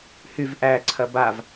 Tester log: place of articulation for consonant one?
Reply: glottal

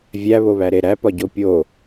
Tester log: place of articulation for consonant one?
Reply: labial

